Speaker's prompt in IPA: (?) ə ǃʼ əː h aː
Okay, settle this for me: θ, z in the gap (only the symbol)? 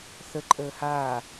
θ